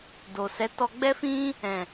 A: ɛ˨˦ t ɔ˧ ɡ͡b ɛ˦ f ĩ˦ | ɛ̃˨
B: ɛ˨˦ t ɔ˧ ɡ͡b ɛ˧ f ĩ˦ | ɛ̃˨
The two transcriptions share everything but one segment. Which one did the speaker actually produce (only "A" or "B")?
A